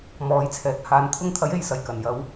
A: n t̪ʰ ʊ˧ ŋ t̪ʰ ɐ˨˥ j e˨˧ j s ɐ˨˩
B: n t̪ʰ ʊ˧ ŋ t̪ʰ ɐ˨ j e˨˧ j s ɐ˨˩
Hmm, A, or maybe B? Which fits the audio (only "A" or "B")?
A